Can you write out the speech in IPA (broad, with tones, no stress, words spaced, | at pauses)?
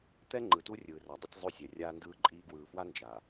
t̪ɛ˦ŋ͡ǃɯ˨tu˦ rʲɯː˨ra˨dˤɯ˦tʲ zˤu˦˨sʲɛ˨ rʲaː˦ndɯː˦ǃʼiː˦ ɡwɯː˨fwa˦ nd͡ʒa˨